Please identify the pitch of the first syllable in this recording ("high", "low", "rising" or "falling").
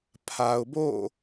low